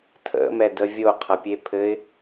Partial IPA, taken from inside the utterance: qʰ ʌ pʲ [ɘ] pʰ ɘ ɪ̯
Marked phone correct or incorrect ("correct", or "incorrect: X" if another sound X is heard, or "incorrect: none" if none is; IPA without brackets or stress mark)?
incorrect: e